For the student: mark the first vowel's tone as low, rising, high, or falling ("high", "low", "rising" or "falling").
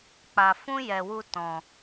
low